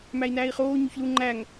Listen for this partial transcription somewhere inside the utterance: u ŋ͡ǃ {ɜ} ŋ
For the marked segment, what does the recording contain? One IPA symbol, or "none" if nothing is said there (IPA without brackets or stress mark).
æ